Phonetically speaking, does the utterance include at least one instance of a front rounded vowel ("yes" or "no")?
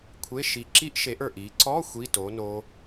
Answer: no